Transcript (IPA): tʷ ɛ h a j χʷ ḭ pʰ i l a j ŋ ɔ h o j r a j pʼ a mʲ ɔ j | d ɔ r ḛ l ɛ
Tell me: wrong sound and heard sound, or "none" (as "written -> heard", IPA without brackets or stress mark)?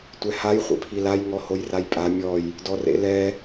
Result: none